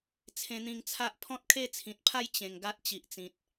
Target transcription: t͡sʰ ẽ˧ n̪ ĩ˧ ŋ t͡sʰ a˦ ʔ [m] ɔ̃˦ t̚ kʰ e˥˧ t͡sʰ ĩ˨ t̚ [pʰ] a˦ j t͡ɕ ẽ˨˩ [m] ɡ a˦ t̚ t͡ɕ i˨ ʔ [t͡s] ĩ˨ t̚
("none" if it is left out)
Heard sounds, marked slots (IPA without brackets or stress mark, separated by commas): pʰ, pʰ, ŋ, t͡s